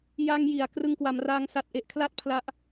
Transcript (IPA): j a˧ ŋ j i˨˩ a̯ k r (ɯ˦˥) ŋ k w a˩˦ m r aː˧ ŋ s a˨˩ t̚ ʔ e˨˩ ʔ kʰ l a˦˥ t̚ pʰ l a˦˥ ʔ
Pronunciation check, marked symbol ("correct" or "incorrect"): incorrect